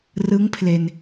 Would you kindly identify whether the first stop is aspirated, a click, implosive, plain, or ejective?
aspirated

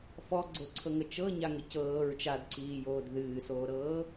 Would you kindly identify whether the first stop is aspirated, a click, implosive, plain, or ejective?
click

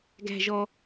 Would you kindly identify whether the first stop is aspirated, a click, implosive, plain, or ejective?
plain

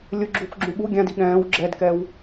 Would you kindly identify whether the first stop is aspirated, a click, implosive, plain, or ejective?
click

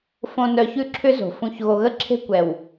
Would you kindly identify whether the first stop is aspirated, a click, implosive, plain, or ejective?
click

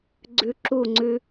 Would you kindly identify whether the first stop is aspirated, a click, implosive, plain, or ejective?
click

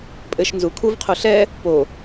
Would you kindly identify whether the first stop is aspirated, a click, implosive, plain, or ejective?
ejective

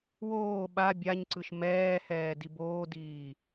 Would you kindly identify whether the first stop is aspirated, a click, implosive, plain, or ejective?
implosive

